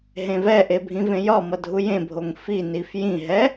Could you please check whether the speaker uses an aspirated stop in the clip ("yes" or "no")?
no